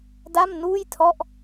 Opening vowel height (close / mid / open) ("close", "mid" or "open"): open